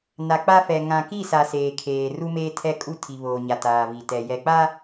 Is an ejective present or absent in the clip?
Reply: present